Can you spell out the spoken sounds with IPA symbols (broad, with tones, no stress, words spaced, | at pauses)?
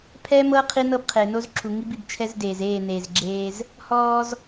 pʰɛː˦mɤ˦ qʰi˦nɤ˦bqʰe˨ no˦zǁʰu˨ ŋi˦bi˨bt͡ʃʰɛ˦zdeː˨z eː˦˨ne˨zɡ͡ǁeː˦z | hɔː˦z